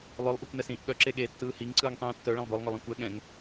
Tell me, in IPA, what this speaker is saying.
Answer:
lˠœlˠʔokʷnɛsĩːʔ ɠœǁe ɠeːtːɯːhiŋ ǀɯːŋtˤĩːtːœ ɭɛ̃lˠbœlˠŋœlˠĩ kʷɛ ɠɛ̃ŋ

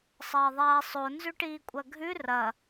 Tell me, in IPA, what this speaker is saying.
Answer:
sˤɐːðˤaːsˤo nzʉʈiːkʷʼɐɡʱʉ rɐ

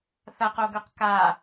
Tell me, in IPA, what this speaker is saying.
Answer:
θɐqoɡɵq ka

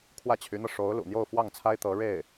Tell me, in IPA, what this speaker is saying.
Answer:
kʰwä˥˩t͡ɕʰy˧˥n̪ɤ˧ ʂo˧˥ʊ̯lṵ˨˩ n̪jo˥˧ʊ̯fwɑ˥˩ŋt͡sʰa˥ɪ̯ t̪ɤ˧˥ɻe˥˩ɪ̯

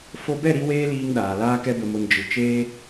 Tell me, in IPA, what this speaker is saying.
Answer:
fo˧bɛ˦˨ɾi˧ weː˦liː˧ŋ ɗaː˨laː˦ kɛ˧bə˨mo˨n d͡ʒɨ˨ t͡ʃeː˧

